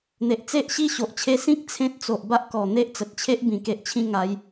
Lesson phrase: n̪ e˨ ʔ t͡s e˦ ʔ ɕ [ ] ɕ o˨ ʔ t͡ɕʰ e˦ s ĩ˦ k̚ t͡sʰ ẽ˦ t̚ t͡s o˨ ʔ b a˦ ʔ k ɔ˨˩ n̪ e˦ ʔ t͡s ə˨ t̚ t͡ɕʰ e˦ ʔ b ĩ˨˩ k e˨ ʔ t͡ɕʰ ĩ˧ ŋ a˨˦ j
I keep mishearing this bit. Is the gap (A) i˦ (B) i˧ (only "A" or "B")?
A